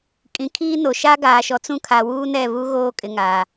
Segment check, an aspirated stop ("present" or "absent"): present